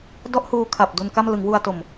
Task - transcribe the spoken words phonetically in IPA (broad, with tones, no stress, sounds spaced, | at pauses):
d ɔ˦˥ ʔ h uː˧ kʰ a˨˩ p̚ d u˧ n k a˥˩ m l ɯ˩˦ ŋ w u˧ a̯ t o˨˩ m